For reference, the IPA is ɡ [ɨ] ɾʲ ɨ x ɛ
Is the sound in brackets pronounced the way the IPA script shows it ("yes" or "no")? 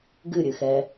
yes